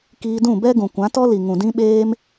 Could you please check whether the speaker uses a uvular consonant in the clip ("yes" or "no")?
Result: no